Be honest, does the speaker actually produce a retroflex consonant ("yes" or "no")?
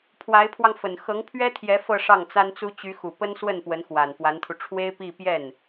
yes